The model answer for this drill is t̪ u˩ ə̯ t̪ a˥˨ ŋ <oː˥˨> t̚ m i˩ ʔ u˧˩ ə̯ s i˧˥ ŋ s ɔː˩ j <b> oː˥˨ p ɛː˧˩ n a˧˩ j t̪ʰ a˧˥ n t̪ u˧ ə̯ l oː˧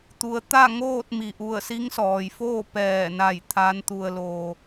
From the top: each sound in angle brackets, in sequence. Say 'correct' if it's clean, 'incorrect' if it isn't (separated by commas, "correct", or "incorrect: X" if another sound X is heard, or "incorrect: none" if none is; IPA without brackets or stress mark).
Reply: correct, incorrect: f